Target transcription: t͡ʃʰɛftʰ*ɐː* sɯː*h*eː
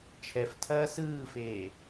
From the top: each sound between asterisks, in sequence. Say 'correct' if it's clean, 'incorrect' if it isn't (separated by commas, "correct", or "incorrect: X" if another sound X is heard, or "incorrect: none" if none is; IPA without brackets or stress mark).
correct, incorrect: f